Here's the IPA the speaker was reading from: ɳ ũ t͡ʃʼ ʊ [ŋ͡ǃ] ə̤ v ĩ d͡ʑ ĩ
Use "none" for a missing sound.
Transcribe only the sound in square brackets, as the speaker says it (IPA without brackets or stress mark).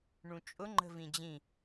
ŋ͡ǃ